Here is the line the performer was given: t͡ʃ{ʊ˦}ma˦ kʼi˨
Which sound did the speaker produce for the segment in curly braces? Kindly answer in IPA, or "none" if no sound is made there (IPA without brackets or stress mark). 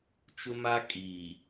ʊ˦